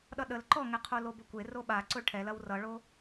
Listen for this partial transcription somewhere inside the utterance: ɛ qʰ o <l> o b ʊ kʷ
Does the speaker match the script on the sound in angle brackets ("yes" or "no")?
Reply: yes